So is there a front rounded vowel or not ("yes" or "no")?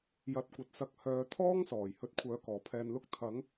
yes